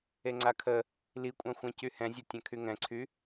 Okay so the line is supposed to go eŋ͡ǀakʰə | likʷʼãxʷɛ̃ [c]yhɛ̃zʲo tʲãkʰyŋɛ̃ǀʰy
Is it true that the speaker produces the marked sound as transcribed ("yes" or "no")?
yes